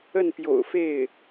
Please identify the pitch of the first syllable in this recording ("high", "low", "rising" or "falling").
falling